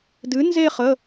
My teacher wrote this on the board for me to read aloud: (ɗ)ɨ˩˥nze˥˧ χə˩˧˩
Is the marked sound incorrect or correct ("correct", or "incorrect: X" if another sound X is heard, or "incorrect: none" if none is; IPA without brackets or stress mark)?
incorrect: d